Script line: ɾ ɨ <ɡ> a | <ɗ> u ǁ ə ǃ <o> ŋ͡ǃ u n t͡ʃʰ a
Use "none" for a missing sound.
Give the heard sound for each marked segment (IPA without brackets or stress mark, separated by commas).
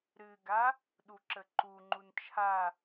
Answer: ɡ, ɗ, u